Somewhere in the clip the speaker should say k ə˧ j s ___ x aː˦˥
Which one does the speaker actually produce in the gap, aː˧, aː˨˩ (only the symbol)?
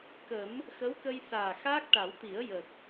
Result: aː˨˩